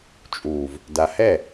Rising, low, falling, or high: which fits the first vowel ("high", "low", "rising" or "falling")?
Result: low